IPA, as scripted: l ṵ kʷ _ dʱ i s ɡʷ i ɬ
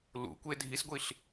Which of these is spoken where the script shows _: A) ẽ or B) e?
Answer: B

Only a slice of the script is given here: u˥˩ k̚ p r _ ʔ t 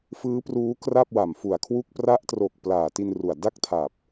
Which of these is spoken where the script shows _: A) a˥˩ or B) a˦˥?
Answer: B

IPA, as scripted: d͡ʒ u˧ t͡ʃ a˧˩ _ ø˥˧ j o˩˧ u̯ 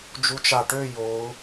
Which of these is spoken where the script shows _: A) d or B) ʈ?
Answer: B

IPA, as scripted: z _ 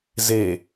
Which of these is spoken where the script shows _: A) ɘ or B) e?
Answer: B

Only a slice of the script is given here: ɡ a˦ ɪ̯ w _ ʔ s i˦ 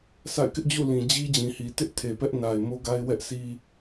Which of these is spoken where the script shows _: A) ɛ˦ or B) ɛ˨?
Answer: A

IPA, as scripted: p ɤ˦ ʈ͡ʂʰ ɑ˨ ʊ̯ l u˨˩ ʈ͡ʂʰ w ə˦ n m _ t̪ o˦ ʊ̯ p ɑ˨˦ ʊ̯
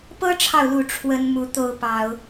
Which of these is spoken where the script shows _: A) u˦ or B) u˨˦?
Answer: B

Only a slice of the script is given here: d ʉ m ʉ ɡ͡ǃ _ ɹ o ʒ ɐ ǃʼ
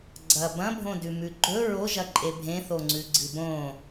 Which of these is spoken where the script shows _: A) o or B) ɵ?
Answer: B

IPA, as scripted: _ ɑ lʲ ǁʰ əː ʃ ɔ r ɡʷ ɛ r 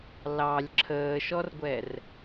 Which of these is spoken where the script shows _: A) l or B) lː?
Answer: A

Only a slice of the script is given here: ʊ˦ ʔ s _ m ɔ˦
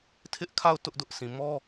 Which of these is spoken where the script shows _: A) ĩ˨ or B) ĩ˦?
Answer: A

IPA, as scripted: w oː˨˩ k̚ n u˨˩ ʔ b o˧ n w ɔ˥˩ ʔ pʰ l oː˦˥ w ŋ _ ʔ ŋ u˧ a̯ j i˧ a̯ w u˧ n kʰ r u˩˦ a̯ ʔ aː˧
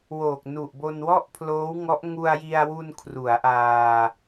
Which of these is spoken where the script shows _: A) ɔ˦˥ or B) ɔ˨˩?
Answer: A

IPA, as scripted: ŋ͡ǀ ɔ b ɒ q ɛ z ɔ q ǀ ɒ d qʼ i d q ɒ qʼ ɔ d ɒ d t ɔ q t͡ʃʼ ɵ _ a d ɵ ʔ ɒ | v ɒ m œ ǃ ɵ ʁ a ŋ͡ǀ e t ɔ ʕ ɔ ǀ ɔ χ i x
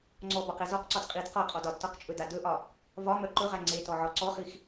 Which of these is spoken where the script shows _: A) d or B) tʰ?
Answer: A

